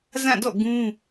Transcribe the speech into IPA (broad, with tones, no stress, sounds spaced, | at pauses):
z ã˦˨ d ɔ̰˦˨ ɡ ũ˦